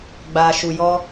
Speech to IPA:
ɡ͡b aː˨ ʃ u˨ j ɔ˧

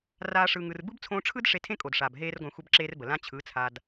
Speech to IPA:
r aː˦ ʂ ɯ˧ ŋ ɯ˧ r b ɯ˦ b t͡sʰ õː˧ ʈ͡ʂʰ ɯ˦ d ʂ e˧ tʰ ẽ˦ kʼ o˨ d ʂ aː˨ b ɦ eː˦ r ɡʷ ã˧ xʷ ə˦ b ǁ eː˦ r b ə˨ l ã˦ t͡ɕʰ ɯ˨˦ t͡sʰ a˧ d

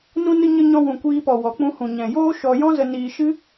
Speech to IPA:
n ũ˧ n ɨ˧ ɲ ə˧ ɲ ɔ̃˧ w ũ˨ kʷ iː˧ p ɔ˨ w ɔ˨ k͡p ũ˧ h ũ˨ ɲ ɛ̃˨ j oː˦ ʃ ɔ˧ j ɔ̃˦ z ə˧ n iː˧ ʃ ɨ˦

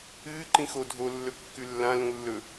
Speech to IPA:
ɨː ǃ ĩ x o dʱ o lː ɵ kː ʉ lː ã l ũ lː ɵ

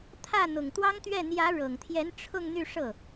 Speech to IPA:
t̪ʰ ä˥˩ n̪ ʊ˨˩ ŋ t̪ w ɑ˥ ŋ t̪ ɥ ɛ˥˩ n̪ j ä˧˥ ɻ ɤ˨˩ ŋ t̪ʰ j ɛ˧˥ n ʈ͡ʂʰ ʊ˥˧ ŋ n̪ y˥˧ ʂ ɤ˥˩

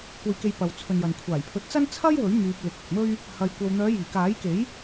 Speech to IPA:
kʷ ɐ˨ j k e˨ j p ɐ˨ w t͡sʰ ɵ˨ n j ɐ˨ n kʷʰ aː˨˩ j pʰ ɵ˨˥ t̚ t͡s ɐ˥ n t͡sʰ ɐ˥ j w ɵ˨˥ ɥ m yː˧ p̚ l ɪ˨ k̚ ɪ˨ k̚ m ɵ˥ ɥ | h ɐ˧ j kʷ ɐ˧ w n̪ œː˨˧ j iː˨˩ k aː˨˥ j k e˨˥ j

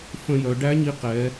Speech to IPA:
f ə̃˧ j œ˩˧ ɖ æ˧˥ ɲ i˧ q ɛ˩˧

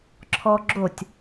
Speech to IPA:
ǁʰ ɔ ɡ͡ǁ o tʲ

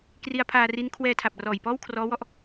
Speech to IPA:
k r i˦˥ a̯ pʰ aː˧ r i˦˥ n kʰ w ɛː˧ tʰ a˨˩ p̚ r ɔː˨˩ j p ɔː˥˩ w kʰ r ɔː˦˥ w ɔ˦˥ ʔ

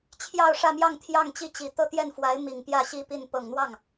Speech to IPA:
t͡ɕʰ j ɑ˥˧ ʊ̯ ʂ ä˥˧ m j ɑ˥˧ ŋ t̪ʰ j ɑ˥˧ ŋ t͡ɕ i˥˩ t͡ɕ i˨˩ t̪ ɤ˥˧ t̪ j ɛ˥˩ n f w a˧˥ ɪ̯ m i˨˩ ŋ p j ä˥˩ ɕ i˥ p i˥˩ n p ɤ˨˩ ŋ n̪ w ɑ˥˩ ŋ

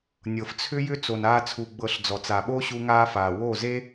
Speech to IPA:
nʲ ɤ˨ f t͡sʰ ʏ˦ j ʏ˦ t͡s o˧ n aː˦ t͡sʰ u˧ ɡ͡b ɤ˧ ɬ d͡z ɔ˨ t͡s a˨ ɓ o˦ ɕ u˦ ŋ aː˦ f aː˨ w oː˦˨ z e˦

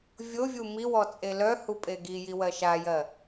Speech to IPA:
vʲ o vʲ u m i w ɔ t͡sʼ e l œ h u pʼ e ɡ i j i w ɜ ʃ a j ɜ

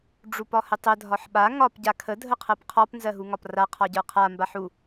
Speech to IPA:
ɖ͡ʐ u p ɒ h ə tˤ ə dʱ ɒ ħ ɓ a ŋ ɒ p ɟ a kʰ ə dʱ ə qʰ ɜ p qʰ ɒ p n z ɜ ɦ u ŋ ɒ p r a qʰ ɒ ɟ ə˞ qʰ a m b a ħ u

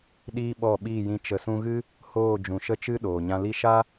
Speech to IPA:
ɗ iː˦ ɓ ɔ˦˨ ɓ iː˦˨ j ĩ˧ t͡ʃ ə˨ s ũ˧ ɣ ɨ˦ | h oː˦˨ d͡ʒ ũ˨ ʃ ə˦ t͡ʃ ɨ˦ ɗ oː˨ ɲ ã˧ l i˦ ʃ a˦

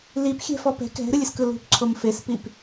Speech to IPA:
l i p xʲ ɛ̤ f ɔ p ɛ̤ k ɛ̤ ɾ ɯ lʲ ɯ s k ɯ l ṳ p ǀʰ o m f e s p i p

